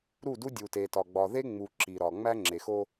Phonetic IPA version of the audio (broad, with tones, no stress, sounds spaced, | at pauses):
ɾ u˦˨ d u˦ dʲ u˨ t e˨ t ɒ˨ ɡ͡b ɒ˨ ð e˦ ŋ͡m u˨ ǁ i˨ ɾ ɒ˨ ŋ͡m æ˦ ŋ͡ǁ e˨ x o˦